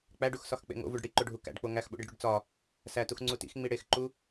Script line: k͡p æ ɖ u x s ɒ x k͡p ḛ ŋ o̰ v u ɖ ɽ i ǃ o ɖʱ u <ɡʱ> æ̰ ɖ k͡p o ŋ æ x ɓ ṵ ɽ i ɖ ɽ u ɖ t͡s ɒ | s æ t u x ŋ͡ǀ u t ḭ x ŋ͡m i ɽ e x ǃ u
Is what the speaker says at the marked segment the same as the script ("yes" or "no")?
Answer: no